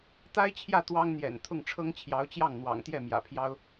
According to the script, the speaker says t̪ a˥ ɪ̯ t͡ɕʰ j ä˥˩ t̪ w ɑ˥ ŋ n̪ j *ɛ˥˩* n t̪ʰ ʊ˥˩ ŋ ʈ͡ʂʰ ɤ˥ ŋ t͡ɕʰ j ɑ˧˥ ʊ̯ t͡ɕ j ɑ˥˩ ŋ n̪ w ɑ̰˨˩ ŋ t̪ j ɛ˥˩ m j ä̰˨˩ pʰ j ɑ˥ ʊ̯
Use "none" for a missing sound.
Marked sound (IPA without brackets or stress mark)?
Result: ɛ̰˨˩